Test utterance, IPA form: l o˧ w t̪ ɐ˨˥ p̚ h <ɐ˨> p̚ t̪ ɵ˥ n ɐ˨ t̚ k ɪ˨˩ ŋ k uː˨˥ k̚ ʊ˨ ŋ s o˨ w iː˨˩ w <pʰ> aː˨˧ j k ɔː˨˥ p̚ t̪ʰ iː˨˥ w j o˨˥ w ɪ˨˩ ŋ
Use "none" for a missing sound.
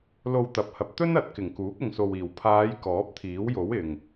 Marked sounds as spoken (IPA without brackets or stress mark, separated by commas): ɐ˨, pʰ